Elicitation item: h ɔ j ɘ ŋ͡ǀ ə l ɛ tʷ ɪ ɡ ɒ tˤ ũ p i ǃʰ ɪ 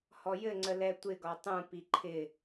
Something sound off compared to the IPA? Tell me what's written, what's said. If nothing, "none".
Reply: none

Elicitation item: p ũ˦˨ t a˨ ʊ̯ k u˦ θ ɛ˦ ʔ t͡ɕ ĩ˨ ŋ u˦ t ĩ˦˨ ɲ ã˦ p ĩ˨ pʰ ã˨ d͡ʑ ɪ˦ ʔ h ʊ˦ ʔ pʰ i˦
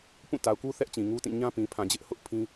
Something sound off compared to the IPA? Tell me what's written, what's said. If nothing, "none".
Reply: i˦ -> ĩ˦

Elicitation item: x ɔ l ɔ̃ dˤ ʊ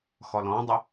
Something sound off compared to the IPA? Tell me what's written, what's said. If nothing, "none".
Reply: none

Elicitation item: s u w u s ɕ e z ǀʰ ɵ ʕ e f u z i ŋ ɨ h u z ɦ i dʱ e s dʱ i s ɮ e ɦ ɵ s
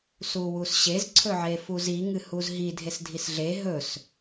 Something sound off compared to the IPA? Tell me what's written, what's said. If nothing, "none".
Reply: none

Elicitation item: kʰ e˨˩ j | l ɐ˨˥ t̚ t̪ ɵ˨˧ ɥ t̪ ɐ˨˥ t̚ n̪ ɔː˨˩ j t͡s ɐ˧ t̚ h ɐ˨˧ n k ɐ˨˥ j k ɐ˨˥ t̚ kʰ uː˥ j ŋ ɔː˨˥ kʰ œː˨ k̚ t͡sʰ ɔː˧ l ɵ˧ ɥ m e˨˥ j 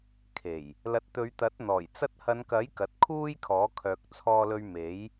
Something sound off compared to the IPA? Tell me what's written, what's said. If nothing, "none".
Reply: ŋ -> kʰ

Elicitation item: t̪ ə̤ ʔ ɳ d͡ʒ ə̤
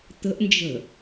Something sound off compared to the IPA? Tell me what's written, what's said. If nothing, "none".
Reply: ɳ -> n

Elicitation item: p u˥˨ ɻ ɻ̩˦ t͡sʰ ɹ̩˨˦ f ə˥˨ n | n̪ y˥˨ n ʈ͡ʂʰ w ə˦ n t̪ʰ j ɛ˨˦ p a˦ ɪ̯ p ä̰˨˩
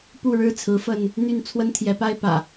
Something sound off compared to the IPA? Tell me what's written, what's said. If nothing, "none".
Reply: ʈ͡ʂʰ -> t͡sʰ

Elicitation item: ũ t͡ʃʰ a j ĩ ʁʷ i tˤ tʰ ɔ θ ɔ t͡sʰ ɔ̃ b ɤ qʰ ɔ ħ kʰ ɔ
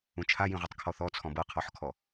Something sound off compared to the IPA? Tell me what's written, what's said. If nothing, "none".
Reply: tʰ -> kʰ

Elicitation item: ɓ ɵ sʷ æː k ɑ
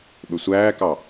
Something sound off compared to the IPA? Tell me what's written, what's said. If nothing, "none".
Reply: none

